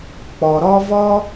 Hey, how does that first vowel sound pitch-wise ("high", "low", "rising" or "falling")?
low